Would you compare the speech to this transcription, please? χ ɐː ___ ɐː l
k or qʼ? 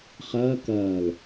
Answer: k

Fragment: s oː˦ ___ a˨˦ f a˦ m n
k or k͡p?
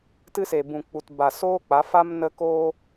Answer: k͡p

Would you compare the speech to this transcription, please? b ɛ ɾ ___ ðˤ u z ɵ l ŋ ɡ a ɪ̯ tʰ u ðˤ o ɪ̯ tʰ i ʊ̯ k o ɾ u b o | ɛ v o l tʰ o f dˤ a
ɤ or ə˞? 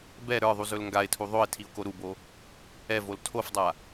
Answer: ə˞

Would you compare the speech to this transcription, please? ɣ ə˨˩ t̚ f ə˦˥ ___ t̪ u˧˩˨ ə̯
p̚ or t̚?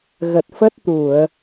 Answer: t̚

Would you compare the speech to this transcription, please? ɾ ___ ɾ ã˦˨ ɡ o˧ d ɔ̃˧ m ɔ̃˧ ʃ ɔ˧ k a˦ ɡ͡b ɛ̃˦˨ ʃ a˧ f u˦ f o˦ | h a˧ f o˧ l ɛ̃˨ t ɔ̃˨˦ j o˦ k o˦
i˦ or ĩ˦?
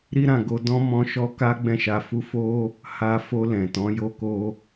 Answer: i˦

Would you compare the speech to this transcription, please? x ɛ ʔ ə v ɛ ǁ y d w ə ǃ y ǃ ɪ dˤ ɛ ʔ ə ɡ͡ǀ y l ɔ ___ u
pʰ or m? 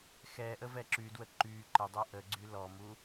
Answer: m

